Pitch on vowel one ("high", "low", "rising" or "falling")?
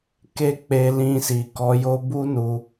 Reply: high